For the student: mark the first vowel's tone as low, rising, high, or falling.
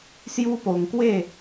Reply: high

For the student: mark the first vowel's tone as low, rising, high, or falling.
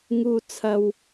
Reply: low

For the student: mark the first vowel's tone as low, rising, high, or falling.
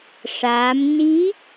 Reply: rising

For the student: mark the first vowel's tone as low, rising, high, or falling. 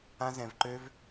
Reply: high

